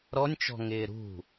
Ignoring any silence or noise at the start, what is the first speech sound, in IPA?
ɾ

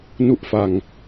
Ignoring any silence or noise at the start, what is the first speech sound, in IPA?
n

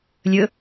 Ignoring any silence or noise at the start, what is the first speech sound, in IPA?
lʲ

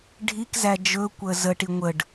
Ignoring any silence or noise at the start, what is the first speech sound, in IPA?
ɖʱ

